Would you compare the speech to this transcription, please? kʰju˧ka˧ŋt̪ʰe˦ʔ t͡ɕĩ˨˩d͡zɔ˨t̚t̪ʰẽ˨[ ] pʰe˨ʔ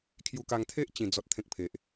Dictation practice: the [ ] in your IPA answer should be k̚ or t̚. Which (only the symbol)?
k̚